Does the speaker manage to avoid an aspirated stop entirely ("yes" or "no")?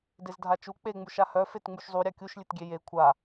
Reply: no